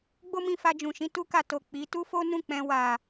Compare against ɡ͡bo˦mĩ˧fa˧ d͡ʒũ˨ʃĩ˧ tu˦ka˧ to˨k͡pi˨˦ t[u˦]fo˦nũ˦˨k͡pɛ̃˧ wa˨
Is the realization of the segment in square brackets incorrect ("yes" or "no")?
no